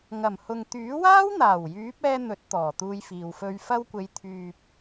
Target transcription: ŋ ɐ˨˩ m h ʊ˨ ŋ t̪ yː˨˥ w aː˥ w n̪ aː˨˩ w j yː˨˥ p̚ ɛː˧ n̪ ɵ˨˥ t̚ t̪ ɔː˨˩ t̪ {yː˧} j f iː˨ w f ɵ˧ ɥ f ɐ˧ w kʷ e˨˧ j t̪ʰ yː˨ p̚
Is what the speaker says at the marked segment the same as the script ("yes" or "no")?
no